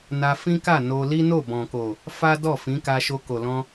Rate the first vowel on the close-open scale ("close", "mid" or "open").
open